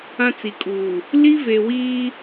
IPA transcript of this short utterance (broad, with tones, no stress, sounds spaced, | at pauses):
ã˦ t͡s i˨ kʼ uː˨ | l i˦ v e˨ w iː˦